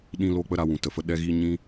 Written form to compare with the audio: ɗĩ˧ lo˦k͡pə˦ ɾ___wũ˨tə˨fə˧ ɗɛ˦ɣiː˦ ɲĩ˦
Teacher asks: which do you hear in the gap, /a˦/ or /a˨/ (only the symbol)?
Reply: a˦